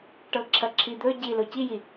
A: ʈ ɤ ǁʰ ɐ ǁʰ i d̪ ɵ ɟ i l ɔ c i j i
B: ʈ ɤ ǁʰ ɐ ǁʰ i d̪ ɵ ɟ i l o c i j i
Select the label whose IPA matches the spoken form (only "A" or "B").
B